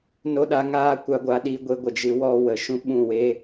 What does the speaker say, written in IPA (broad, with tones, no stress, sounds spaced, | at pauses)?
n o˦ ɗ a˨˦ ŋ aː˦ kʷ a˧ ɡʷ a˧ ɗ i˧ ɡʷ e˧ ɡʷ ə˨ d͡ʒ ɨ˨˦ w ɔ˧ w ə˨ ʃ ũ˦ ɓ ũ˦˨ w e˦